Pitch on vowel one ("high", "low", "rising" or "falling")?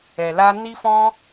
low